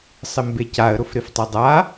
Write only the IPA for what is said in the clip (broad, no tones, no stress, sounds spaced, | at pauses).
sˤ ɪ m b e c a ə̯ ɾ ʊ f ɾ e f tˤ e dˤ a